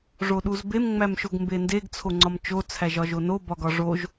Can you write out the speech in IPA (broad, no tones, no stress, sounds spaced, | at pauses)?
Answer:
ʐ o ɗ u z b e m ŋ͡m æ m ʃ o ɡ m b e n d e ɡ t͡sʰ o ŋ͡ǀ ɒ m t͡ʃ o t͡sʰ æ ʒ ɒ ʒ o n o b ɒ ɡ ɒ ʐ o ʒ